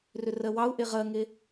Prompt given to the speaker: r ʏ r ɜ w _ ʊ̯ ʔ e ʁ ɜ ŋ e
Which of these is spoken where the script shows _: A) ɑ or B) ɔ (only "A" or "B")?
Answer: A